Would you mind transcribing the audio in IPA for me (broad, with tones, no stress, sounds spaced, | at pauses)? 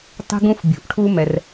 tˤ i̤˥ ɡ ũ˥ f bʲ ṳ˩ ʔ ʈʰ u˥ m ɛ˩ r